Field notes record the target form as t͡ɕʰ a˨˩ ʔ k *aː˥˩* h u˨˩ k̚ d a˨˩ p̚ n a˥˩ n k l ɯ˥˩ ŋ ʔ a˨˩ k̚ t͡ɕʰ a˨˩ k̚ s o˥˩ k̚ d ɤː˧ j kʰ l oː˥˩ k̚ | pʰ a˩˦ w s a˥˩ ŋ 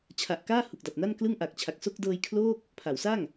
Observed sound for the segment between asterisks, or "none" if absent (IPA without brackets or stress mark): aː˥˩